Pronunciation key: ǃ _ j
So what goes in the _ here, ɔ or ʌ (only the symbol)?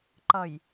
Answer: ʌ